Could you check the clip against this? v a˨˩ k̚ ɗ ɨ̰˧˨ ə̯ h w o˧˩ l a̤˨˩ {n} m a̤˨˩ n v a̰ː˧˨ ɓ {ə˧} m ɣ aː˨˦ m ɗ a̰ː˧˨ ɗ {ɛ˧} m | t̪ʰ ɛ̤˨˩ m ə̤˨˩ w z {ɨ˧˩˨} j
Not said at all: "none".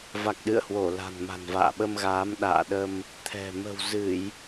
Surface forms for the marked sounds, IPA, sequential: n, ə˧, ə˧, ɨ˧˩˨

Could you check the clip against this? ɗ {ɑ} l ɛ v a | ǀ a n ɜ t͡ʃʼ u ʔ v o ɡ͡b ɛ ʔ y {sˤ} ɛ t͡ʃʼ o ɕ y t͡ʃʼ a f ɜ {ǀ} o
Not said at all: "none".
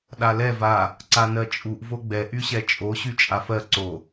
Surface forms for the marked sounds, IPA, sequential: a, ɕ, ǀ

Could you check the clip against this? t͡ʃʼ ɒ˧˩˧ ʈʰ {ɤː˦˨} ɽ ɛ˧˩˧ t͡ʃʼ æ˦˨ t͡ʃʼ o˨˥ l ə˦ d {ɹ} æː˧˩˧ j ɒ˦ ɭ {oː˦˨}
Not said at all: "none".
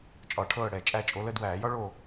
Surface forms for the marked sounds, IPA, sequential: ɤː˦˨, w, oː˦˨

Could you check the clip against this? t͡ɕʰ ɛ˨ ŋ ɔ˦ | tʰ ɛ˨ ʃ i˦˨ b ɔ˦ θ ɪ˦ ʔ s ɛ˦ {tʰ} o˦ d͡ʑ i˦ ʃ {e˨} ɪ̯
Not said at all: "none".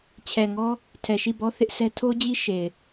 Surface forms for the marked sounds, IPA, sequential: tʰ, e˨

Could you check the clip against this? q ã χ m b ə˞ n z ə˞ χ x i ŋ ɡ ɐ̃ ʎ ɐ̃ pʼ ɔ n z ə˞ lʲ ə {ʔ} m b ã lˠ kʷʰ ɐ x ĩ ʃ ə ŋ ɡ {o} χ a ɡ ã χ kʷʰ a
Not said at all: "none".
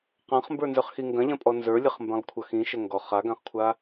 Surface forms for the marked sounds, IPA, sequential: χ, ɔ

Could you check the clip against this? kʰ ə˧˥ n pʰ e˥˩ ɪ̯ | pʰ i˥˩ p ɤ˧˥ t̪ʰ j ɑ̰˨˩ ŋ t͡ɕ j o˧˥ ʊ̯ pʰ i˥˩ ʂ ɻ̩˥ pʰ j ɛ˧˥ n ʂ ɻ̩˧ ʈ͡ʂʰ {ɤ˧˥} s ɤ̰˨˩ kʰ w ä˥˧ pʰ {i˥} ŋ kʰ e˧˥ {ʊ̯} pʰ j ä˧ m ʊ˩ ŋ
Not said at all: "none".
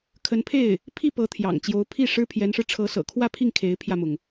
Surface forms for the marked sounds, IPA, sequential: ɤ˧˥, i˥˩, ɪ̯

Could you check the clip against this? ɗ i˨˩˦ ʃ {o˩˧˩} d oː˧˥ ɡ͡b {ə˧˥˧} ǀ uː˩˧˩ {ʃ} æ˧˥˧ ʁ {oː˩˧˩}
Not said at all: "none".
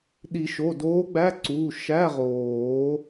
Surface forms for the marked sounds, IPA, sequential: o˩˧˩, æ˧˥˧, ʃ, oː˨˩˦

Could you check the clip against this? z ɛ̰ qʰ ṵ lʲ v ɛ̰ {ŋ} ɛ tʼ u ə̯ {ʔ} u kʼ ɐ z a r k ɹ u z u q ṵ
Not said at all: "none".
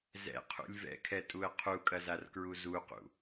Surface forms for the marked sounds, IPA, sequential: kʰ, qʰ

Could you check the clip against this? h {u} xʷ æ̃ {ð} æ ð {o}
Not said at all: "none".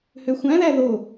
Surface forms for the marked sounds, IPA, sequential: ø, ð, o

